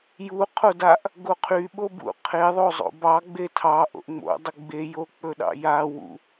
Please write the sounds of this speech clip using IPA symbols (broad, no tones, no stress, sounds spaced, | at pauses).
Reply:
j u qʰ o d a ʔ | ɡ o qʰ y ɓ o b ṵ qʰ e ðˤ o zˤ o̰ b ɑ ɡ͡b e tʰ ɑ ʔ o̰ ʔ ŋ͡m o̰ dˤ ə ɡ͡b e j o k͡p ɵ ɗ ɑ̰ j a w ṵ